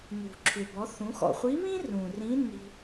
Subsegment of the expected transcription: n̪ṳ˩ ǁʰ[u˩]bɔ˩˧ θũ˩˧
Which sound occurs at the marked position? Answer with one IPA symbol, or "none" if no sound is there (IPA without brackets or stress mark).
ʏ˩